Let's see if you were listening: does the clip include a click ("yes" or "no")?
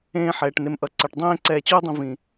yes